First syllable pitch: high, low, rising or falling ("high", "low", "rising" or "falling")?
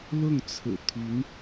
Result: falling